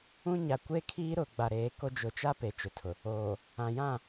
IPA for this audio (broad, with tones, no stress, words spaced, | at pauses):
ũ˦ɲa˨ kʷe˦kʰiː˦ɾʊ˨ ɡ͡ba˨ɾeː˨˦ko˦ d͡ʒʊ˨t͡ʃa˦ pe˨t͡ʃʊ˨tʰʊ˨ | oː˨ | ã˨jã˦˨